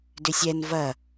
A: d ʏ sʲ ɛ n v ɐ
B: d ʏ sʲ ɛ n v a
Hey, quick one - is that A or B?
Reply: A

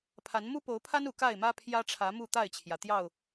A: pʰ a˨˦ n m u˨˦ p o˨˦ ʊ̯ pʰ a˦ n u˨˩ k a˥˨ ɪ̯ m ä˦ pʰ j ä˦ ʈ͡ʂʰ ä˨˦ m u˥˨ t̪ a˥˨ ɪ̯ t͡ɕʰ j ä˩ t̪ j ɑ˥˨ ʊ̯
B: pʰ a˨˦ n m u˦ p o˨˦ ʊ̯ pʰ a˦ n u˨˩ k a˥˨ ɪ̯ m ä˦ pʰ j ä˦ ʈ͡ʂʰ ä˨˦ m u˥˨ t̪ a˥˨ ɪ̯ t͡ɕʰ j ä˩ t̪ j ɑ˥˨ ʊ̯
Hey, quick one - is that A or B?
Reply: B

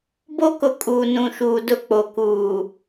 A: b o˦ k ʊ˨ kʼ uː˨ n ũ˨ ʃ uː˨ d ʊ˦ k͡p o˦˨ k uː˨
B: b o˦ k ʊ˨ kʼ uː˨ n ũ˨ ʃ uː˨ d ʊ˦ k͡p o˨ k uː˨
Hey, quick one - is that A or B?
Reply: B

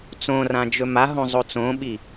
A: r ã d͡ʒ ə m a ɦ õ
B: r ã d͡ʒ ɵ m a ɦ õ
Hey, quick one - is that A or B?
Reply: B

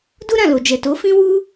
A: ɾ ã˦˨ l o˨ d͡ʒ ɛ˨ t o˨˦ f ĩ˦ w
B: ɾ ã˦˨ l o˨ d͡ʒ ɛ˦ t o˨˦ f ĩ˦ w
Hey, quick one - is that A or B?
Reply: A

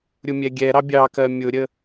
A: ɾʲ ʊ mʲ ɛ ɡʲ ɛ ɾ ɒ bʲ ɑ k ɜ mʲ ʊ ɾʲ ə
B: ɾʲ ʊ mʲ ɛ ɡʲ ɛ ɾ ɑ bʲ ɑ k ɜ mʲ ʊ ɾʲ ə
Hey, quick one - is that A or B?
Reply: B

